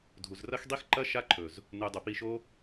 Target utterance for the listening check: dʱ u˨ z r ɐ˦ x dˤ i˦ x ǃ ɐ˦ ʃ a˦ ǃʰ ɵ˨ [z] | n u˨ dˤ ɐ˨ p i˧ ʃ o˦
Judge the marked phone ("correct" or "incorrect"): correct